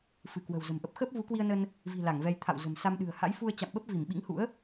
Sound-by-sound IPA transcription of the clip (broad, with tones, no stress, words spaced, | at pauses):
fɨ˧˩kwə̤˨˩w zə̤˨˩mʔə˦˥p̚ xəː˦˥p̚vu˨˦kwi˧ə̯nə˧n | vi̤˨˩ la˧˩ŋvɛ˧j t̪ʰa̰˧˨w zə̤˨˩msa˧mɗɨ̤˨˩ə̯ ha̰˧˥jfu˧ə̯ t͡ɕa̰˧˨mɓə˦˥p̚ vi˧˩mɓḭ˧˥ŋhṵ˧˥ə̯